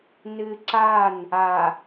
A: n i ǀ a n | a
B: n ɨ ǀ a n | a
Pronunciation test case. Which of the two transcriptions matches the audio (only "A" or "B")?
B